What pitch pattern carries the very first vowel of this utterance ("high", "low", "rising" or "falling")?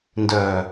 low